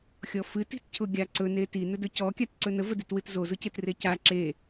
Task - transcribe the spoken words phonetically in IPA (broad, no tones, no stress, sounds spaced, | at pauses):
xʲ ɔ f ɨ t i̤ t cʰ ʊ ɡʲ a ǀ ɵ n e t i n ɵ d ɵ c ɔ kʲ a t ǀ ɵ n ə v ə d i t w ɨ t z o z ʊ c e t r e c a ǁ e